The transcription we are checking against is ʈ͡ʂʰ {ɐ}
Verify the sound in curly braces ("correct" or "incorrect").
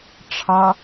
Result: incorrect